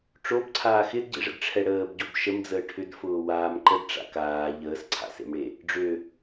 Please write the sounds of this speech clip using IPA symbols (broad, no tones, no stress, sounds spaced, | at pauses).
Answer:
ʈ͡ʂ o b ǀʰ aː x ɪ d ɟ ḛ ʐ ə̰ d ʈ͡ʂʰ ɛ ɽ əː b ɟ o b ʃ ə m d͡z əː ʈʰ ʏ d f ʊː w aː m ǃ ə d ʈ͡ʂ a̰ k aː ʎ əː s ǀʰ a̰ s ḛ m ɽ e | ɖ͡ʐ ø